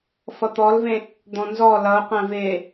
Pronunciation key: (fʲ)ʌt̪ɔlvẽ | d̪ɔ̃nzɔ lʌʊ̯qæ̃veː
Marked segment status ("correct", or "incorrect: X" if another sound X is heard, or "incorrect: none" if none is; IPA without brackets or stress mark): incorrect: f